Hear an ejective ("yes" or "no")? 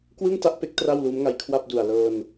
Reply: no